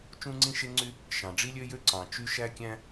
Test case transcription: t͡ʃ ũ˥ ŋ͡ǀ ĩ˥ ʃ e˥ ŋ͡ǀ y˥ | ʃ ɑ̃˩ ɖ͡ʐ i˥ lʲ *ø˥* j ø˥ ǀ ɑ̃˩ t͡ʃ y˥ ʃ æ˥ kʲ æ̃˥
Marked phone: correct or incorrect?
correct